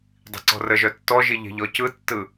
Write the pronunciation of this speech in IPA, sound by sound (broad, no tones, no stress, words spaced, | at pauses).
dˤi̤ǀɔ̤rəʒœ tːɔʒi ʎe̤ʎɔcɯtːɯ